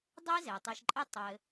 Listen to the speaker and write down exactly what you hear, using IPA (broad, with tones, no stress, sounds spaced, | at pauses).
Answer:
dˤ e˥ z e˩ tˤ i˨ ʃ ǃʼ ɘ˦ tˤ ɘ˨